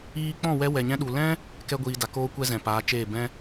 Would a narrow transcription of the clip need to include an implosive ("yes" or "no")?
yes